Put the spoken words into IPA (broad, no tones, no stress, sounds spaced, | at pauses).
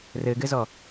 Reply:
r ɘ ɡ ɘ z ɔ